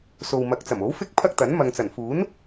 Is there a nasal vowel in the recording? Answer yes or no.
no